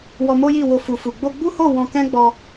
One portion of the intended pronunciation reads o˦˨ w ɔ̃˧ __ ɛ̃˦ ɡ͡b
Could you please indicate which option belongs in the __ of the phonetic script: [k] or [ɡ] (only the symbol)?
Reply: k